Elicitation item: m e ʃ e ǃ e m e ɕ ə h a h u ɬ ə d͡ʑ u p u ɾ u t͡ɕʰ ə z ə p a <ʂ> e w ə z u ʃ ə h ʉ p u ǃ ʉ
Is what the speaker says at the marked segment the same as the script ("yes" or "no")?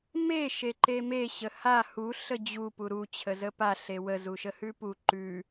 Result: no